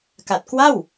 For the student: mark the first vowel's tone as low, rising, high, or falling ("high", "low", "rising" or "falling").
low